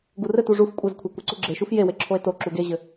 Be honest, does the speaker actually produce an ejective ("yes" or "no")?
yes